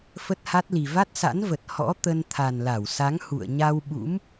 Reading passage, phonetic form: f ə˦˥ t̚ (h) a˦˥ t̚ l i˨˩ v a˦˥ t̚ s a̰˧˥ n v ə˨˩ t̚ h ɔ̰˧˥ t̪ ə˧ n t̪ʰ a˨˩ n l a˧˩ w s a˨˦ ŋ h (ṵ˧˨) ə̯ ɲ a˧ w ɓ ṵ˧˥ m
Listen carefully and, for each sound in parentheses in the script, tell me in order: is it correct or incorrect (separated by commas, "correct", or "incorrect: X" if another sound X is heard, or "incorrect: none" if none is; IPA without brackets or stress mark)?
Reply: correct, correct